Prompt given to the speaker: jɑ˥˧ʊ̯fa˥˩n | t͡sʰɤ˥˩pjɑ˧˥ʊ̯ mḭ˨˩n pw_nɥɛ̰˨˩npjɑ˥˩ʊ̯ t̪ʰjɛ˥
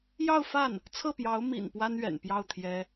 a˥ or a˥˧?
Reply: a˥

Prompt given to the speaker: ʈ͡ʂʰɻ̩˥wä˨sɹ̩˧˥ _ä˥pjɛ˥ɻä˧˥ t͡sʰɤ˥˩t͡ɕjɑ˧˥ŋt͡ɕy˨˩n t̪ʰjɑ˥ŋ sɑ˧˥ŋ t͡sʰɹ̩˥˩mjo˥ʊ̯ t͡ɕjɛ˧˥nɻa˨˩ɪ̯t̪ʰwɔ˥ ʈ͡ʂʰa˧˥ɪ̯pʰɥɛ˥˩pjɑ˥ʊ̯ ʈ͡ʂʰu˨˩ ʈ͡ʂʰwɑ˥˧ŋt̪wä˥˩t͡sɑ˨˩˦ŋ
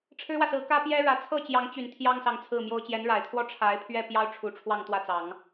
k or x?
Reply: k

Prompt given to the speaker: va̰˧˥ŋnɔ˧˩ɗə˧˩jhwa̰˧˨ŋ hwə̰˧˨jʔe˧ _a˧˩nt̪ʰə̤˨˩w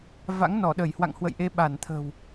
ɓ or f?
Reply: ɓ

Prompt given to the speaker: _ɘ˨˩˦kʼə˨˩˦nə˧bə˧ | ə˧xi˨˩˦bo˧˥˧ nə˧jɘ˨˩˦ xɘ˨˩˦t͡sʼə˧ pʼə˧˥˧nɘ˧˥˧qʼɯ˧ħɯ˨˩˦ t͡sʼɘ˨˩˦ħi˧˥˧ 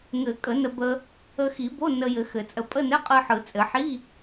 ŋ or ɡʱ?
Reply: ŋ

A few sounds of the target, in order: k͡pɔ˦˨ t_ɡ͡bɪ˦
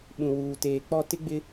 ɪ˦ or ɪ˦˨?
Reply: ɪ˦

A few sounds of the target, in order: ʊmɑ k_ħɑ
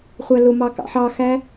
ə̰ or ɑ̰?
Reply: ɑ̰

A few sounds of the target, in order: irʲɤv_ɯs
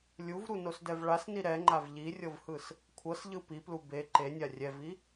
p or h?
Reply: h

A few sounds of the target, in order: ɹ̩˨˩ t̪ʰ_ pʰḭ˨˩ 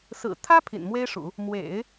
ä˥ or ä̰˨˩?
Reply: ä˥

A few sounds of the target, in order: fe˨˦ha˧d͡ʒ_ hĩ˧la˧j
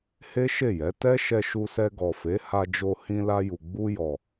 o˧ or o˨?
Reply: o˧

